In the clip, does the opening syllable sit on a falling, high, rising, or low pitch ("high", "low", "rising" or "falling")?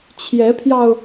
rising